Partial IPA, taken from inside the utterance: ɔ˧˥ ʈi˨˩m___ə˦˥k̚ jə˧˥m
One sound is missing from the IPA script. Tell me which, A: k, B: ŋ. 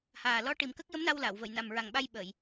A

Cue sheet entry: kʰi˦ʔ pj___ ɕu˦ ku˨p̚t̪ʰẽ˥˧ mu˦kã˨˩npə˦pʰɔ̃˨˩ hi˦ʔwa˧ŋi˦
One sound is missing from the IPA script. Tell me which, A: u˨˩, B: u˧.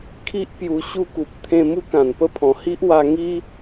B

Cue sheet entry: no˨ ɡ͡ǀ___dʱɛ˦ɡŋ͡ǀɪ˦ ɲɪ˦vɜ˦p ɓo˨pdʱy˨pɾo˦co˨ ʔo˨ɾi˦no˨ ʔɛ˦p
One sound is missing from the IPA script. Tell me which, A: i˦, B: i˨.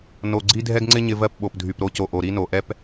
A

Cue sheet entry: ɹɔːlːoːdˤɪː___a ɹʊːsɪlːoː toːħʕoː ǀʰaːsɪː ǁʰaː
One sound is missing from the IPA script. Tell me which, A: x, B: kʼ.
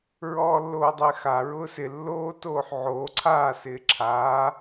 A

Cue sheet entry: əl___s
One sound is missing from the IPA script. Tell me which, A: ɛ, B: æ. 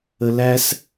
B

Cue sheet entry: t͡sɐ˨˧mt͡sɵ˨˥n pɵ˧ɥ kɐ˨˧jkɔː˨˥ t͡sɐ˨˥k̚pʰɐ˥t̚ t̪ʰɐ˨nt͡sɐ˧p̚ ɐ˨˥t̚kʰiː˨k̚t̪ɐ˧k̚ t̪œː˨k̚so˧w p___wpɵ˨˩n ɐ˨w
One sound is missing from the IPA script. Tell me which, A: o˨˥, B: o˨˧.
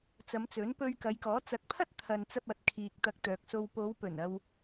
B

